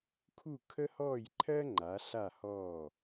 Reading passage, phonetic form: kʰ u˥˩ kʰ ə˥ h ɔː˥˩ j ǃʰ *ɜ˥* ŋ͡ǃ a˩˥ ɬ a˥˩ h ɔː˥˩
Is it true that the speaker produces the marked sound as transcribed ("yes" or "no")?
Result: yes